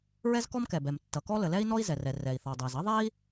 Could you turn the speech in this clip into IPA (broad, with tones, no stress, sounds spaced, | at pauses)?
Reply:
ɹ ɛ˥ z k ɔ˥ m k ɛ˩ b ɛ˩ m tː ʌ˩ k ɔ˥ l ə˩ l ɛ˥ i̯ n ɔ˥ i̯ z ɛ˩ r ɛ˩ r ɛ˩ i̯ θ ɔ˩ dˤ ɛ˩ z ʌ˥ ðˤ ɛ˥ i̯